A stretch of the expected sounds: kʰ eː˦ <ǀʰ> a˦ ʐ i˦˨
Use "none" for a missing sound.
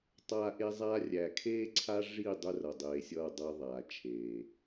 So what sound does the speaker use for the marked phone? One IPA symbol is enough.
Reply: ǀʰ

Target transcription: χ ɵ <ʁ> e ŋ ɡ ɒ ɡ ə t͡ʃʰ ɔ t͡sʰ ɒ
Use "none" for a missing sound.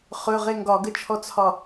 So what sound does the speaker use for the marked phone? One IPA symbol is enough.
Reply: ʁ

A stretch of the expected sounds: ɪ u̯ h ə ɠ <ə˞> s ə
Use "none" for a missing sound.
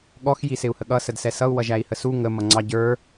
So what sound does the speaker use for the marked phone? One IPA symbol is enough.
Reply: ʌ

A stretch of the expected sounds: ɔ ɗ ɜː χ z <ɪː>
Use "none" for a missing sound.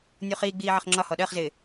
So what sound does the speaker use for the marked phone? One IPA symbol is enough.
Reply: ɪː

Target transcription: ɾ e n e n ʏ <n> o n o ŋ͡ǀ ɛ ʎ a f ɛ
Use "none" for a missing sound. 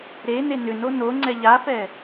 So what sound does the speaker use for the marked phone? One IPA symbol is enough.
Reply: n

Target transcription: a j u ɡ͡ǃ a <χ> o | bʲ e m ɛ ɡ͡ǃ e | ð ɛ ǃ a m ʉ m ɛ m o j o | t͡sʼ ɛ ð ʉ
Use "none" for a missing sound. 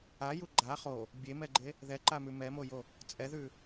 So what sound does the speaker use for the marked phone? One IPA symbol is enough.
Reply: χ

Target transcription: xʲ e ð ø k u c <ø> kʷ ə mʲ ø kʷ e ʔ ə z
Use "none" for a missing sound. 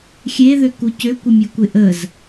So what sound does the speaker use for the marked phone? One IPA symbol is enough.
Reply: ø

